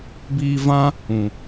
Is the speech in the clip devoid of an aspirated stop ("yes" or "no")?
yes